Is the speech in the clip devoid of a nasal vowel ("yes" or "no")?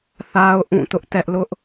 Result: no